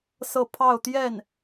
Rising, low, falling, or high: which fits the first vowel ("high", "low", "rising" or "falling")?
falling